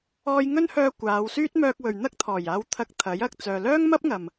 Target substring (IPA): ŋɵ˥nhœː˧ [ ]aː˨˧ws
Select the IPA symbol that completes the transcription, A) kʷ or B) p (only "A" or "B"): A